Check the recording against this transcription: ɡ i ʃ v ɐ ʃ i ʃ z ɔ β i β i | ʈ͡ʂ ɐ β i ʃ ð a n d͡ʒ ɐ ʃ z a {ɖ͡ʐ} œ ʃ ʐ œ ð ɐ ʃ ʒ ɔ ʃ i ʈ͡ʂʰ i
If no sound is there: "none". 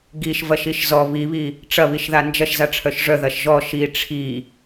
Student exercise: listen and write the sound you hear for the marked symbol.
ʈ͡ʂʰ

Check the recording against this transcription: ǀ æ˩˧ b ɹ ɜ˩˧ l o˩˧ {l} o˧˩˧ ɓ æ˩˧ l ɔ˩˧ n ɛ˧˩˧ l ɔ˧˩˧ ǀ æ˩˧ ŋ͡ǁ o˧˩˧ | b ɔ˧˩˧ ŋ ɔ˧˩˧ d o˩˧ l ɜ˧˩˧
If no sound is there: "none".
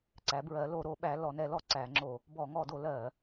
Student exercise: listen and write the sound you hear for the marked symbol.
ɾ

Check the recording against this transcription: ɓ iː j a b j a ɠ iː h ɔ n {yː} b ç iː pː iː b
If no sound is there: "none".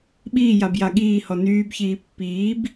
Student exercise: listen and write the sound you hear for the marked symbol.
yː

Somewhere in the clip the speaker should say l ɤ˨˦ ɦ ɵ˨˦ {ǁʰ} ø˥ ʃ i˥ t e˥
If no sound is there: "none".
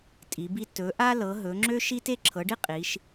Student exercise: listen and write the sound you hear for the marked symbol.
ŋ͡ǁ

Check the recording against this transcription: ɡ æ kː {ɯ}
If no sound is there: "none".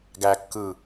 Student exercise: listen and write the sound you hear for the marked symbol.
ɯ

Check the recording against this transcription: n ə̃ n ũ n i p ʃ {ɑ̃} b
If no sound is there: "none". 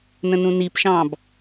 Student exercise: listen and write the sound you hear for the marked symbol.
ɑ̃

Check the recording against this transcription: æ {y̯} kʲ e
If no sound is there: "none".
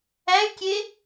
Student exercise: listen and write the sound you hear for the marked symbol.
y̯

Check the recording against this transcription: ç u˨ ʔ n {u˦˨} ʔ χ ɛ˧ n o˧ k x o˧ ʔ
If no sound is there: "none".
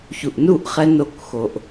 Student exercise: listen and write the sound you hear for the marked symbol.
u˦˨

